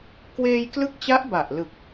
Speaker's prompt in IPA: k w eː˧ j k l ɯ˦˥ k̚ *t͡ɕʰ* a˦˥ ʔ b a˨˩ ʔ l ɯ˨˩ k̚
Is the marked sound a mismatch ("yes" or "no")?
yes